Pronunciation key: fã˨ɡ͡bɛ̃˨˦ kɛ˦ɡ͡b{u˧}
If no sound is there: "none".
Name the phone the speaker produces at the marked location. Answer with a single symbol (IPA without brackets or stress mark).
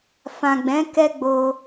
o˧